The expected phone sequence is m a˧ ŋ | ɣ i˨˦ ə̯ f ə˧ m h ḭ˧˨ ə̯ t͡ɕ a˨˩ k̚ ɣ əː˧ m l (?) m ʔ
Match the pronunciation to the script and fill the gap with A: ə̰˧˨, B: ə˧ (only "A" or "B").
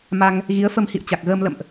A